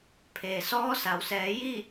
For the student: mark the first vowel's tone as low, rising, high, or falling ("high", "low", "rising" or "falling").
low